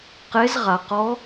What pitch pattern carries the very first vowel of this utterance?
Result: rising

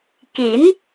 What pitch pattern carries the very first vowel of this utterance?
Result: rising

